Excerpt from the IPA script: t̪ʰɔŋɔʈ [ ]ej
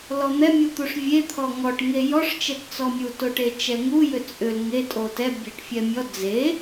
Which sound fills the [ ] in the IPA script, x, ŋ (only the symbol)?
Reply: ŋ